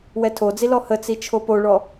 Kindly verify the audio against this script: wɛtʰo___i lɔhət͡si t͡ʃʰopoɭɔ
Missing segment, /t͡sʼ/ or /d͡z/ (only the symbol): d͡z